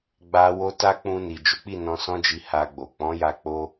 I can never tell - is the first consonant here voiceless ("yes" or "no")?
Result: no